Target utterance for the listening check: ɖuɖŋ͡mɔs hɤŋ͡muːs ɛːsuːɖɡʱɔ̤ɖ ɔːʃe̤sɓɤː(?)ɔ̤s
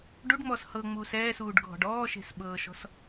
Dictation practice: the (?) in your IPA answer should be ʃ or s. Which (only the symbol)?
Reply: ʃ